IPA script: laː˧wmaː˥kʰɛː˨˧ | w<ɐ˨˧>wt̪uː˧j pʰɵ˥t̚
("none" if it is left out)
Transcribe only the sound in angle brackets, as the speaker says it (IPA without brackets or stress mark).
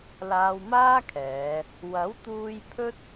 ɐ˨˥